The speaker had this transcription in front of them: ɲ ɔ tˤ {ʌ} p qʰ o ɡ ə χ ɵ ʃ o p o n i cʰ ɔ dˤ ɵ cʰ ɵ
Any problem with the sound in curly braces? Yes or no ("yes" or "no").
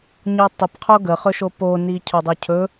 no